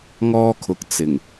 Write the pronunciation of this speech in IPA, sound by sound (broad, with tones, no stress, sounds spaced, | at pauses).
ŋ ɔː˥ kʰ ʊ˨ k̚ t͡s ɪ˨˩ ŋ